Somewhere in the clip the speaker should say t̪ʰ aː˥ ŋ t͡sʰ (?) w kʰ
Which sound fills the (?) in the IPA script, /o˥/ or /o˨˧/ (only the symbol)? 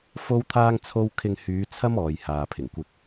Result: o˥